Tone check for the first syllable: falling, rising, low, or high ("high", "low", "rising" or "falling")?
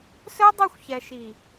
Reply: high